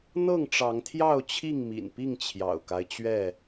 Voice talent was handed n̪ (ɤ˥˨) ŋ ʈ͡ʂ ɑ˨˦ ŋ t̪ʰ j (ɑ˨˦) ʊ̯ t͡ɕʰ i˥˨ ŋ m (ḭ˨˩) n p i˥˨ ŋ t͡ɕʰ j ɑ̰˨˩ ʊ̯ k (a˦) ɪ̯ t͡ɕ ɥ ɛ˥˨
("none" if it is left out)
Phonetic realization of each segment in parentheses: ɤ˥˨, ɑ˥˨, ḭ˨˩, a˦

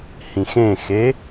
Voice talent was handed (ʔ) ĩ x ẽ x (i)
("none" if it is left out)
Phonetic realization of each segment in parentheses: h, e

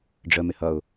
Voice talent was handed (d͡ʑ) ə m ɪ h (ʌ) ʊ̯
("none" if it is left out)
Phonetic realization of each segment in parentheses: ɖ͡ʐ, ʌ

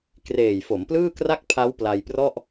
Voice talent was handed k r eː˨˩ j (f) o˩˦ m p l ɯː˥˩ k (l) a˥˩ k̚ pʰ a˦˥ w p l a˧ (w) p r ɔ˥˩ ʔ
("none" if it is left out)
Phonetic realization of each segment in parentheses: f, r, j

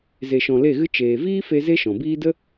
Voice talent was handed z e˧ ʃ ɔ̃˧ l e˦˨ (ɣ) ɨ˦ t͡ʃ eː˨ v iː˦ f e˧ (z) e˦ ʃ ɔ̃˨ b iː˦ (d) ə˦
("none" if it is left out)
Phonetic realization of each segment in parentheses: ɣ, z, d

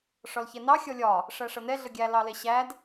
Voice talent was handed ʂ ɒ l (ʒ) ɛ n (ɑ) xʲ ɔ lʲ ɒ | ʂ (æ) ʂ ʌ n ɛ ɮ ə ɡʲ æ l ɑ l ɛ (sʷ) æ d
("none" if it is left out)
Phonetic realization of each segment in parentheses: ç, ɑ, æ, ɕ

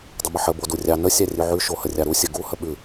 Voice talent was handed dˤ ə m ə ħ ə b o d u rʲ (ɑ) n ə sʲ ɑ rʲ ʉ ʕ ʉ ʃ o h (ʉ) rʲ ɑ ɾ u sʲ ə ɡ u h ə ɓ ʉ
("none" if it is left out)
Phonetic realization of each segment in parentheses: ɑ, ə

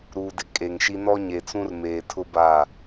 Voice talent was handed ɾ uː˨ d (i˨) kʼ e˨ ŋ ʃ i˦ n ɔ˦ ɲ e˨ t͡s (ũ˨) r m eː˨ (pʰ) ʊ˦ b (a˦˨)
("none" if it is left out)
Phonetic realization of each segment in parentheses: ɪ˨, ũ˦, tʰ, a˦˨

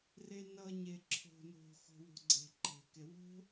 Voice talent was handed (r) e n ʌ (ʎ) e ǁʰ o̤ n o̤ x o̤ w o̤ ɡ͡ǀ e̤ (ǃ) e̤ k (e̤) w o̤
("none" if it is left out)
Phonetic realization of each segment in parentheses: r, ɲ, ǃ, e

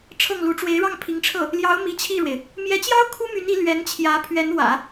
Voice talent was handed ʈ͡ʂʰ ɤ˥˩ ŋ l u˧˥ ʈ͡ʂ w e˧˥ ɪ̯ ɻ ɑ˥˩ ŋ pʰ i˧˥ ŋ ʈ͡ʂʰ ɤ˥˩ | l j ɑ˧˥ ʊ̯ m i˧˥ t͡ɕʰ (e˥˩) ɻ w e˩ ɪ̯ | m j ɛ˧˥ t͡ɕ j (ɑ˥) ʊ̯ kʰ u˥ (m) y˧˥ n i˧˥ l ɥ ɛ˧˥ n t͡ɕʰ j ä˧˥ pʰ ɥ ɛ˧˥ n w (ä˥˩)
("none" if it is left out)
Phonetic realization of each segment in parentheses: i˥˩, ɑ˥, m, ä̰˨˩˦

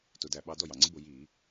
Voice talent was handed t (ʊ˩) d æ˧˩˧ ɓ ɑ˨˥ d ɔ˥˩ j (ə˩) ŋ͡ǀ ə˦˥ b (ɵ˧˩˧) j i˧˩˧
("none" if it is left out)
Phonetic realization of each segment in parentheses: ʊ˧˩˧, ɑ˩, ʊ˧˩˧

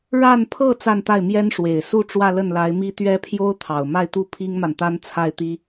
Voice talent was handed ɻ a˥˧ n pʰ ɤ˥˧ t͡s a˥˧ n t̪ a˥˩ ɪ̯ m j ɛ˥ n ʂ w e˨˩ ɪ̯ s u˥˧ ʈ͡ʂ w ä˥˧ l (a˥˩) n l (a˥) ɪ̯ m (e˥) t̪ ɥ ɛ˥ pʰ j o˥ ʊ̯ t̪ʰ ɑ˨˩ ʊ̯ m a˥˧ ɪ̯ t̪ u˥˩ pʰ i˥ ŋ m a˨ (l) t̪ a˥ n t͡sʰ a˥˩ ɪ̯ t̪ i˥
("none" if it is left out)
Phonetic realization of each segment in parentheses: ə˥˩, a˧˥, i˥, n

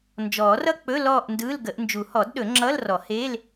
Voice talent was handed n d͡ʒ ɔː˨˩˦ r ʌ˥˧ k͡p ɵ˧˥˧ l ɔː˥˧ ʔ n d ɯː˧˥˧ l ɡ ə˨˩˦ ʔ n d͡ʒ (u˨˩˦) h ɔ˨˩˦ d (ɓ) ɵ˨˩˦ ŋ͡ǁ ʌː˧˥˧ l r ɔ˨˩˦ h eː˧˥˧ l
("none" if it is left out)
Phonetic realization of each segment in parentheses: u˨˩˦, ɗ

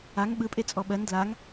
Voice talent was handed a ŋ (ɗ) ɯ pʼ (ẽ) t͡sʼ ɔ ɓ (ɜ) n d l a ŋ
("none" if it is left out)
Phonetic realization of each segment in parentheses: ɓ, e, ɜ

